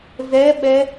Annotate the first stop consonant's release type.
implosive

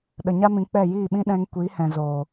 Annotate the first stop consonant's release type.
implosive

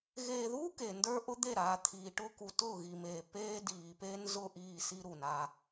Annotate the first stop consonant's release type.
plain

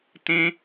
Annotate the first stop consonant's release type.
plain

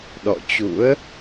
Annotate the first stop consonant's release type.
implosive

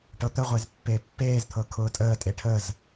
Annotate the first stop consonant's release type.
plain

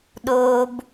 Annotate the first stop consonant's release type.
implosive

